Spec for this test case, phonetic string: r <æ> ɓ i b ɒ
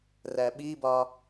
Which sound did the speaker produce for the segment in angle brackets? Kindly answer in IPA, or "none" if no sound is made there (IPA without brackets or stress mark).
æ